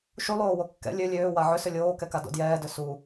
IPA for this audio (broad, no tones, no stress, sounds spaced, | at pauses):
ʃ u lˠ oː w o kː ɛ̰ lʲ ø lʲ øː w a ʕ ʏ s ʏ lʲ oː k ɛ k a d o̰ d j ɛː d ø s u